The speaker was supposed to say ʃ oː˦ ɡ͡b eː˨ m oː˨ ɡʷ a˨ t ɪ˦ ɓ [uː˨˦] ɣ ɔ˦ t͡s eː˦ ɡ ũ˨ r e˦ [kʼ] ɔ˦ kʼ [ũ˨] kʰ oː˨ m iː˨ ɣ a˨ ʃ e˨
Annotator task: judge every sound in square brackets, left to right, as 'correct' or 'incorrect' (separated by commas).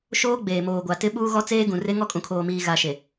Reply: incorrect, incorrect, correct